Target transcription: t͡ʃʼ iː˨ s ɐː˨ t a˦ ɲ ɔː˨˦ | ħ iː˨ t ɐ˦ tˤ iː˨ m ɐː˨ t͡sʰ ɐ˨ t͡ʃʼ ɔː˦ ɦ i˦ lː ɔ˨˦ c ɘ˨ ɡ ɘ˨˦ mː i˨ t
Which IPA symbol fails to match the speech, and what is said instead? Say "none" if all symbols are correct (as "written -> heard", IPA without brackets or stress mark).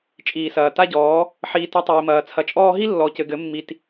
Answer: ɲ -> ɟ